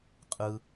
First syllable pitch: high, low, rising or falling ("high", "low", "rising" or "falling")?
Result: high